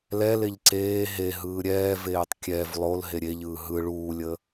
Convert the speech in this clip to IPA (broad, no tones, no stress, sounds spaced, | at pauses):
l ɛ l e ʎ ǀ eː ɦ e ɦ ɯː ɾʲ ɛː v eː tˤ kʲ ɛ v lˠ o l ɦ e ɾʲ e ʎ ɯː ɦ ɯ ɭ uː lʲ əː